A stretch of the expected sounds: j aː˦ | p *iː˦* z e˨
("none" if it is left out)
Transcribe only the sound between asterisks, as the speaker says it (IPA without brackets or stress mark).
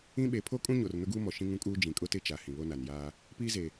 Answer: iː˦